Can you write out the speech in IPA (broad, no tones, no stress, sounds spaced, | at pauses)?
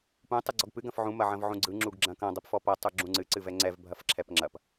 p ũ tˤ ɯ ɡ͡ǀ ɔ ɡ p ɨ ɡ ɐ̃ f ʕ ũ m ɐ ʕ ɐ̃ v ʕ ũ ɡ͡ǀ ɯ ŋ͡ǁ u ɡ ɡ͡ǁ ɐ̃ k ɐ̃ dˤ ɛ p f ɔ p ɐ tˤ u ɡ͡ǁ ũ ŋ͡ǀ ɨ ǀ ɨ v ɛ ŋ͡ǀ ɛ v bʱ ɐ f ǁʰ ɛ p ŋ͡ǁ ɐ p